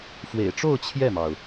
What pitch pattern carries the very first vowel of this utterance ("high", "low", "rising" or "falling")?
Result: low